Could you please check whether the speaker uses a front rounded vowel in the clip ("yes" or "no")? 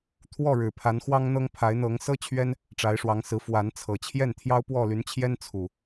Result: yes